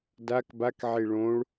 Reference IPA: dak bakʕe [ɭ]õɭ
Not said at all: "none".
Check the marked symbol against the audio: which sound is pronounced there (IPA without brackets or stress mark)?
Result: ɭ